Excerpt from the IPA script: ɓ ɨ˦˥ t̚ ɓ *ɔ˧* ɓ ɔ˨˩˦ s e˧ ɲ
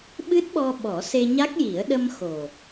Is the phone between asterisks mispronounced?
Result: no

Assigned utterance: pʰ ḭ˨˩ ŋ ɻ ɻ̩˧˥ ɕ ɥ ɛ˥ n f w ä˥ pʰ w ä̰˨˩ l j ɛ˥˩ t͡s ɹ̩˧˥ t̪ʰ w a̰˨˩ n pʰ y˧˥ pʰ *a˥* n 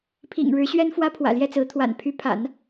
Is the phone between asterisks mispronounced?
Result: yes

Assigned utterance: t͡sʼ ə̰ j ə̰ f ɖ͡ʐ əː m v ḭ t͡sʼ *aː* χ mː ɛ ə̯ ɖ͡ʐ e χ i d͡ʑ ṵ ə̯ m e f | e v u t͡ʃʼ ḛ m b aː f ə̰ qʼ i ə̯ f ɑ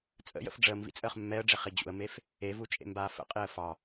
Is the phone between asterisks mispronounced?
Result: yes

